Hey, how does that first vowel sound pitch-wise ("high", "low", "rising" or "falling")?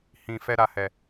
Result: low